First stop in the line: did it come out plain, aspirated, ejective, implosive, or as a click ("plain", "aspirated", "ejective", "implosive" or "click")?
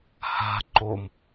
click